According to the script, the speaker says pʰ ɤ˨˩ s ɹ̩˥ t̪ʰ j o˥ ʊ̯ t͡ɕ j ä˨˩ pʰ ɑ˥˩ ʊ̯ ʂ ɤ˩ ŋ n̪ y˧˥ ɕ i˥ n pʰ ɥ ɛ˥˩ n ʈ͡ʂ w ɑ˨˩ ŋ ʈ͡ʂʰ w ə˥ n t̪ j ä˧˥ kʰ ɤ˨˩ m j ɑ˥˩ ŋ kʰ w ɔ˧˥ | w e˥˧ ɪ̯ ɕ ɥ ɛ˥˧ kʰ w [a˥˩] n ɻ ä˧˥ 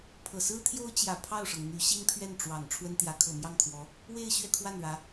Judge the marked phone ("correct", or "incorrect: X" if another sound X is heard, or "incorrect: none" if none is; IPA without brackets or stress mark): correct